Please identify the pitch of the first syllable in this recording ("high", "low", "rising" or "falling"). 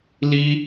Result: high